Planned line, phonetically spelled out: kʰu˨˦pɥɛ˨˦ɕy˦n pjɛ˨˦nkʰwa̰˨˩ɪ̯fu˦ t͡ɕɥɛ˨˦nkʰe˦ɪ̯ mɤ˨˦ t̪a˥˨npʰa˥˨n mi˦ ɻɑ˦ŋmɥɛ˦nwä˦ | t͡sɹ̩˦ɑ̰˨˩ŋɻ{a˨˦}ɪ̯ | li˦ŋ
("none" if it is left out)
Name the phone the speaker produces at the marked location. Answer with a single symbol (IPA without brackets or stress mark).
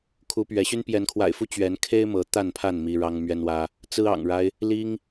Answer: a˦